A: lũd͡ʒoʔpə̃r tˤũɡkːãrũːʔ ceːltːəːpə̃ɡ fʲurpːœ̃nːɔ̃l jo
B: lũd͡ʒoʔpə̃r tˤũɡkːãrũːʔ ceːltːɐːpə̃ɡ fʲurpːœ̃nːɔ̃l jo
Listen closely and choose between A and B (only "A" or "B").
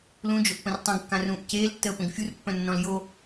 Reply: A